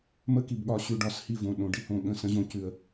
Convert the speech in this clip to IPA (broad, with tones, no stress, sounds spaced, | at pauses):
m ə˦ k i˨ b ɠ ɒ˨ ɕ ʉ˨ ɖ ɒ˨ s h i˦˨ v õ˨ ɗ õ˨ ɖ i˦ h õ˦ ɠ ə̃˦˨ s ə̃˦ ʑ õ˦ c ʉ˦ ə̯